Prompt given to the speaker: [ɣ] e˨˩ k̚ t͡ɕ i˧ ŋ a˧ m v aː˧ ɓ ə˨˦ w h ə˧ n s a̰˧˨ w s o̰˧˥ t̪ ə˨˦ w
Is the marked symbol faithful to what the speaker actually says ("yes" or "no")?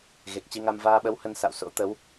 yes